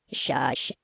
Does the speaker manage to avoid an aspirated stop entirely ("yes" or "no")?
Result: yes